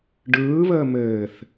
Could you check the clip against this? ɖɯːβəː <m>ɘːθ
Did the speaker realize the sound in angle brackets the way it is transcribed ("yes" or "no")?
yes